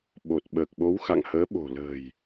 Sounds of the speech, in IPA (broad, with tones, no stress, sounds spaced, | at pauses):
ɓ o˨˩ t̚ ɓ əː˨˩ k̚ ɓ o˨˦ w x a̰˧˨ ŋ h əː˨˦ ɓ o̤˨˩ l ə̤ː˨˩ j